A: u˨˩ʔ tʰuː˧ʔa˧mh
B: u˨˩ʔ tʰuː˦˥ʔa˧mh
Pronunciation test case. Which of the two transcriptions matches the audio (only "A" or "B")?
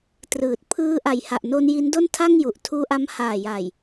A